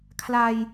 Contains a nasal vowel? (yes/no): no